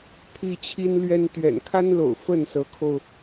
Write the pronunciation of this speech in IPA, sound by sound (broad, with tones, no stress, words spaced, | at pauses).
t̪ʰi˦t͡ɕʰi˦nlɥɛ˦n t̪ɥɛ̰˨˩nkʰa˦nlo̰˨˩ʊ̯ fə˥˨nsɤ˨˦kʰo˧ʊ̯